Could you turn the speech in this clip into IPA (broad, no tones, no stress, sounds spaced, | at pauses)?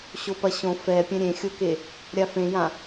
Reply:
ɕ o p ɐ ɕ õ f ɛ pʲ ɛ̃ ɾʲ ẽ xʲ o k e | ɾʲ a f ẽ j ã